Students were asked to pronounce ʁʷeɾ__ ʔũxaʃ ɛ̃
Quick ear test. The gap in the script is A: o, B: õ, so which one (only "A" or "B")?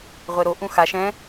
A